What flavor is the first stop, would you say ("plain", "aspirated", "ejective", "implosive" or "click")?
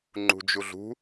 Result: click